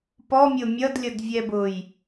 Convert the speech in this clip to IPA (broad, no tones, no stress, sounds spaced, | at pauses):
p ɔ mʲ ʊ mʲ ʌ d lʲ ʌ d vʲ ɛ b ʊː j